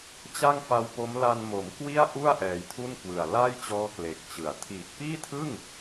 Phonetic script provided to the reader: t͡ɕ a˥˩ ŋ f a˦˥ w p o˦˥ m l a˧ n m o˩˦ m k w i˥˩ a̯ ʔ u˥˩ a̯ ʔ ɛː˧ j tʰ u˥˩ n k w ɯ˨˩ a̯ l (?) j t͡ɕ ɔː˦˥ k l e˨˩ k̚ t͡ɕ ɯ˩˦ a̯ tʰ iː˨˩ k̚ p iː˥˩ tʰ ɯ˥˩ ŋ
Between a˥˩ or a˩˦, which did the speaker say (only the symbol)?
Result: a˥˩